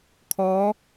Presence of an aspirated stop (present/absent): present